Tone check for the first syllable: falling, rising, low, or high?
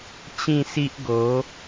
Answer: falling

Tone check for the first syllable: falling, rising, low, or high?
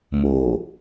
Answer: low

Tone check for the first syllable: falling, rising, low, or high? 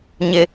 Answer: high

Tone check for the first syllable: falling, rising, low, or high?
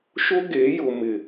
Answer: high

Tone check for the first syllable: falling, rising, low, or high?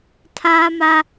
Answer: high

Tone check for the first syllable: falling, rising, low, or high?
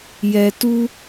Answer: low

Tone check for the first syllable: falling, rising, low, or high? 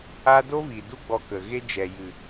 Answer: high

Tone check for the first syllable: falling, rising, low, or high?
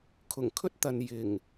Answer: low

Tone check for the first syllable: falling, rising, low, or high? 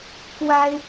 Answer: high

